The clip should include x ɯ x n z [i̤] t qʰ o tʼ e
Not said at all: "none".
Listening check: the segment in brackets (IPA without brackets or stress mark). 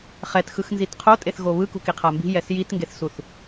i